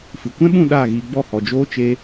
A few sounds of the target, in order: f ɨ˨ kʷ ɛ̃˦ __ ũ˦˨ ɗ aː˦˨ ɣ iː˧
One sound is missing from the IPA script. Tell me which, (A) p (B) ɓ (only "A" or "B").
B